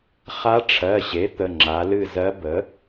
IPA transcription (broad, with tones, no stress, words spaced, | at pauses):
χa˧˥ʈ͡ʂʰɜ˩˧˩ɕe˩˥ t̪ə˩˧˩ŋ͡ǁa˩˧lɨ˦˨ zɜ˧˥ bə˩˥